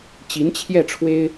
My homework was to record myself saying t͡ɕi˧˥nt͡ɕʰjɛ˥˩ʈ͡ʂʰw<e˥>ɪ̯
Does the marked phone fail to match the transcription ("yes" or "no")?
no